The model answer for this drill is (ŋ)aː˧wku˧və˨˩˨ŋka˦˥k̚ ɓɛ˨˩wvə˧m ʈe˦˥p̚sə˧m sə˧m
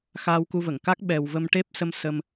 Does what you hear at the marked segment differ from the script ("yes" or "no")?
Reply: yes